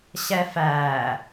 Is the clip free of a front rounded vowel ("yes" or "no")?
yes